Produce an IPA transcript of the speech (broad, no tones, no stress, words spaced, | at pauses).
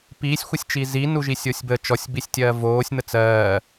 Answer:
piːsʲxʷɜsʲt͡ʃiː zinu ʒisʲosʲbə t͡ʃɔsʲbisʲtʲɜː voːsʲn̪ə t͡sɜː